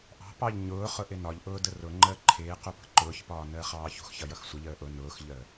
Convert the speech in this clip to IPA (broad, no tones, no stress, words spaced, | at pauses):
ʔɑ̤pɑʎ ɲʊːχʊ ʔɪnɒʎʔʊː dərʊŋ͡ǃəː ǃʰɪːqu pə̤ǃʊːçpɒː nəːχɑːçṳxçʌ jʌxsʷəʎəː ʔʊ nʊːxʎəː